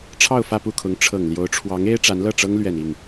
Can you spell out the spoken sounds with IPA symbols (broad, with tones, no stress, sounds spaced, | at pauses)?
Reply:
ʈ͡ʂʰ ɑ˥˧ ʊ̯ f ä˥˧ p u˥˩ kʰ ʊ˧˥ ŋ ʈ͡ʂʰ ɤ˨˩ ŋ l j o˧˥ ʊ̯ ʈ͡ʂʰ w ɑ˧˥ ŋ e˥ ɪ̯ ʈ͡ʂ a˧˥ n l ɤ˥˩ ʈ͡ʂ ɤ˥ ŋ l ɥ ɛ˨˩ n i˥˩ ŋ